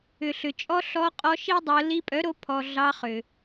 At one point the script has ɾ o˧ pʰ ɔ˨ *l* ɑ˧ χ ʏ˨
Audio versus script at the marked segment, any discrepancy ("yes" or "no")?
yes